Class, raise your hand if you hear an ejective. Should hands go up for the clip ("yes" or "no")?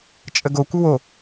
yes